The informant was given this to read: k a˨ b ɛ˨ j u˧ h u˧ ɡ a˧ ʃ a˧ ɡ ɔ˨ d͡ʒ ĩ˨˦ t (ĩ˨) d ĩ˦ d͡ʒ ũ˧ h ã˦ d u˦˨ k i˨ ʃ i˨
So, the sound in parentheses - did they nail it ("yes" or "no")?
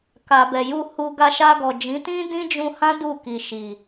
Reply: no